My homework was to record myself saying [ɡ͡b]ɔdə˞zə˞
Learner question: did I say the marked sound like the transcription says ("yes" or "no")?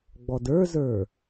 yes